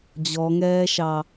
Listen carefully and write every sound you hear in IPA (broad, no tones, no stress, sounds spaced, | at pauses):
d͡ʑ ɔ ŋ ɛː ʃ ɑ